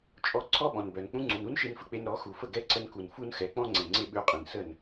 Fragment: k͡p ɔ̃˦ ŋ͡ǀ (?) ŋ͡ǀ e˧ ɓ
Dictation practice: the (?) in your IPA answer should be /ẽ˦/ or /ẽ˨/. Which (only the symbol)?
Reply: ẽ˨